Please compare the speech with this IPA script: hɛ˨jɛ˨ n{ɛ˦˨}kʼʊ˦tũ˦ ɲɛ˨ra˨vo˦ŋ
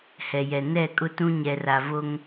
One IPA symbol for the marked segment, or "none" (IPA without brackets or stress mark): ɛ˦˨